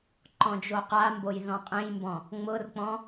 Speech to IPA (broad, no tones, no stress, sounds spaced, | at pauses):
ǃ ɔ̃ d͡ʒ o q a m b o j ð ɔ̃ qʼ ẽ j m b ɔ̃ | ŋ͡m ʊ r k͡p ɔ̃